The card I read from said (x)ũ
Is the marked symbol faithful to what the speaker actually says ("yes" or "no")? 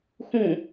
yes